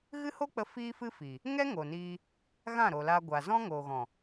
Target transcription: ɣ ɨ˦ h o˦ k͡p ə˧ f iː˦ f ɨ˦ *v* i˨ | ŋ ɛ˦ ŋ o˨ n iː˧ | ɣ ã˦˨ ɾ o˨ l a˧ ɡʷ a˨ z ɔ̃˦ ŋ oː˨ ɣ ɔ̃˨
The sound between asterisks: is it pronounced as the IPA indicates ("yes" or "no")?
no